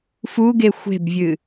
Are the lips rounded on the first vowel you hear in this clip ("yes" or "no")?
yes